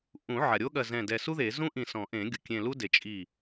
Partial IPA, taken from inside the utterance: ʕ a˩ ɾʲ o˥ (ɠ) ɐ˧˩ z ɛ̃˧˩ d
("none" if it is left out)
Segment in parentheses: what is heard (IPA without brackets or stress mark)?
ɠ